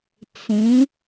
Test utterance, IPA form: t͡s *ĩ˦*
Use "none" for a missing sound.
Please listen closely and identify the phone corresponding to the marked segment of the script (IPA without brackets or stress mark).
ĩ˨˦